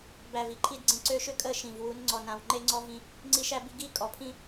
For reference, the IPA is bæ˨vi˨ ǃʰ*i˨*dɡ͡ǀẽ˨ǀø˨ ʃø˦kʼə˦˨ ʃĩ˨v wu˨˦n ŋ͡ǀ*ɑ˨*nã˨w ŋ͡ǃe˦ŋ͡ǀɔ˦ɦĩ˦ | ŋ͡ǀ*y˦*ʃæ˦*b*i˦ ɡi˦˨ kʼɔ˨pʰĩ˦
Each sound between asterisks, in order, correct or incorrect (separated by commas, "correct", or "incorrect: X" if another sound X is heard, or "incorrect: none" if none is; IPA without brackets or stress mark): correct, incorrect: ɔ˨, incorrect: i˦, correct